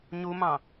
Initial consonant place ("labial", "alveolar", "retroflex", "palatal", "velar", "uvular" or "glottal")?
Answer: palatal